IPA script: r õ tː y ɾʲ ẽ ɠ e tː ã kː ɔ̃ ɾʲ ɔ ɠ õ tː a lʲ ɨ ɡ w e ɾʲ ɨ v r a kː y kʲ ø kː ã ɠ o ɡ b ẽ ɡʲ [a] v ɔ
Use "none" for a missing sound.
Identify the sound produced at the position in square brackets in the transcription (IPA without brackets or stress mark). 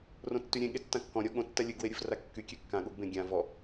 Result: ã